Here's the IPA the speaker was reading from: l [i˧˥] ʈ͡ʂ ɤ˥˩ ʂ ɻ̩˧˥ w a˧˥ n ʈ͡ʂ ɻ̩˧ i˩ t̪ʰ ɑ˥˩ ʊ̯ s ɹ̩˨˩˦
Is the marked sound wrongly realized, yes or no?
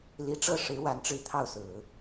no